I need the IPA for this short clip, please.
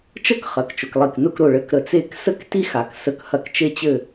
t͡ʃ ə˥˧ k χ ɐ˩˧ k t͡ʃ ʊ˩˧ k lˠ i˧˩ k n ʊ˥˧ k ɾ ʊ˧˩ ɭ ɘ˧˩ k ɾ ə˧˩ t͡s e˥˧ k s ə˥ k t i˥ x a˩˧ k s ə˧˩ k h ɐ˧˩ k t͡ʃ e˧ t͡ɕ ɘ˧˩

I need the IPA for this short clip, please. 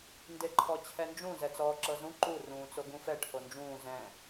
n d e ǃʰ ɔ t͡ɕʰ ɛ n d͡ʒ ũ z ɛ t͡s ɔː ǁ ɤ z ũ ǃ u r ũː t͡s o ɡ ũ f ɛ ʈʰ o n d͡ʒ ũː z ɛ̃

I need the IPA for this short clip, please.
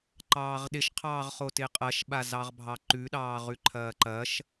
ǃ ɑː ʁ ɗ ɪ ʃ qʰ ɑː ʁ χ o t ɪː qʼ ɐ ʃ ɓ a z ɑ ʁ bʱ ɑ ǃ ʉ ɗ ɑː ʁ ʉ ǃʰ ɐː ǃ ɐ ʃ

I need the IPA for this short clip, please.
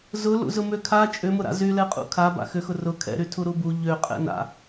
z ʊ l ṵ z ʊ m ø kʰ a t͡ʃʼ ʏ m ʊ ɾ a̰ z y l ɛ qʼ ṵ kʰ a b a̰ x ʏ x ʊ r ʊ kʰ ɛ̰ ɾ y tʰ u ɾ u b u ʎ ø qʼ ɛ̰ n a̰

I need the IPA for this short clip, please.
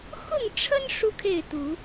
x ʊ˥˨ ŋ ʈ͡ʂʰ ə˦ n ʂ u˦ kʰ e˥˨ ɪ̯ t̪ u˨˦

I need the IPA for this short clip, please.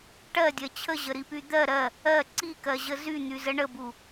ʈ ɜ dʲ ɜ t͡ɕʰ ə ʑ ə ɾ i p y d̪ ɜ ɾ ɜ | ɜ ǀ i k ɜ ʑ ə z y n̪ y z ə ɳ ə b u

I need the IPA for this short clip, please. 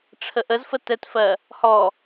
ʈ͡ʂʰ ə ʔ ə z f ə t ɛ t f ɜ | h ɔ

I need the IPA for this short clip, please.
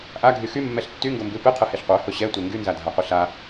ʔ a ɡʱ y x y mː ɛ ɬ tː y ŋ ɡ o m b ɨ p ɨ qʰ ɨ h e ɬ qʷ ə˞ h ʊ ɕ ɛ tʷ e ŋ ɡ y n z a dʱ a qʷ ɨ ɬ a

